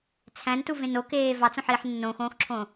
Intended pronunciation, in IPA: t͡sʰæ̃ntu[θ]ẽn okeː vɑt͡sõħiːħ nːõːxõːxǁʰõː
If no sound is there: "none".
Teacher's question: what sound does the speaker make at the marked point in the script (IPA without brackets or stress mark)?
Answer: v